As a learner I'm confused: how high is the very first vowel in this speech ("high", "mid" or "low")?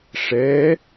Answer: mid